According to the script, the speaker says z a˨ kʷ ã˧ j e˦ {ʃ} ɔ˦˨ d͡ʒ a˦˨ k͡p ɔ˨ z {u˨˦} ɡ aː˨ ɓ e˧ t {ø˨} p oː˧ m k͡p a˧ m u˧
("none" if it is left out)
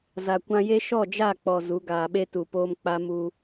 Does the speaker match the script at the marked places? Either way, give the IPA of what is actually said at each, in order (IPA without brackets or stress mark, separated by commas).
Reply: ʃ, u˨˦, u˨